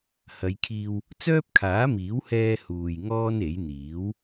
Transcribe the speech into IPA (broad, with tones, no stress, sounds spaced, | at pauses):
h ɐ˨˧ j kʰ iː˧ w | t͡s œː˥ p̚ kʰ aː˨˥ m iː˨˥ w h ɛː˧ h uː˧ j ŋ ɔː˥ n e˨˥ j n̪ iː˨˥ w